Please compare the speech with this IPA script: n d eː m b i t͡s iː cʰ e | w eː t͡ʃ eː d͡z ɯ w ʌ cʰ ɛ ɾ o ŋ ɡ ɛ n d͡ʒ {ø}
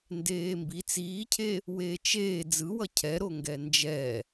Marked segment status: incorrect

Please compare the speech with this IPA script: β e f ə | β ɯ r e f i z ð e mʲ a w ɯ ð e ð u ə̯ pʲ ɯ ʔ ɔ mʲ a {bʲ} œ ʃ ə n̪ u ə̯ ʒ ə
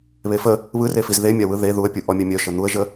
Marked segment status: incorrect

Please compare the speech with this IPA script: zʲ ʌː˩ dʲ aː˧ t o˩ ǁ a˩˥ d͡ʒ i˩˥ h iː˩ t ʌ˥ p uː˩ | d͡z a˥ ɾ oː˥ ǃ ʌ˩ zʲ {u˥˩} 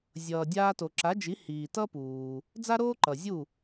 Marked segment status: correct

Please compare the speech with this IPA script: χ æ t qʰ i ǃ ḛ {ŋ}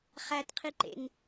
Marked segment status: correct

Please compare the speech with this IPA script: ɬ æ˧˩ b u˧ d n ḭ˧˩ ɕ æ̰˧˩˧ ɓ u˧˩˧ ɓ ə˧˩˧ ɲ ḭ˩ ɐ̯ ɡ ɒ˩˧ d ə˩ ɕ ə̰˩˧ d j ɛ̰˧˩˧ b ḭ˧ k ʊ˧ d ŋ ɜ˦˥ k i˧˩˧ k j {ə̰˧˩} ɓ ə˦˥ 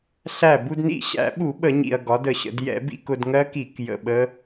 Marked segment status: correct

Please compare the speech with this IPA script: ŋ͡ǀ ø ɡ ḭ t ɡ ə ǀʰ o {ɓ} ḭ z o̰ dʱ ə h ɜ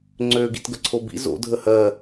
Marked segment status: incorrect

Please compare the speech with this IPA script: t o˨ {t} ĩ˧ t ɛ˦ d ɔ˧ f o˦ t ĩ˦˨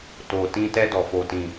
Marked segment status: correct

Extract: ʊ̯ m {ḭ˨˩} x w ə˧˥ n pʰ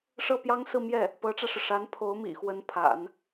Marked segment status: correct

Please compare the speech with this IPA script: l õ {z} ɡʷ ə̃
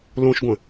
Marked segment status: incorrect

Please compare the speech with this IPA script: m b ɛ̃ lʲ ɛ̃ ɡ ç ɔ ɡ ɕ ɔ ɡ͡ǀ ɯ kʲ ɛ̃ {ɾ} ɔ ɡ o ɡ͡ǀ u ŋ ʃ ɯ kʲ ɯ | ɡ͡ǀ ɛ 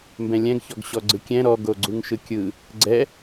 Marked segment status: correct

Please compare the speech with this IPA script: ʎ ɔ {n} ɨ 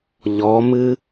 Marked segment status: incorrect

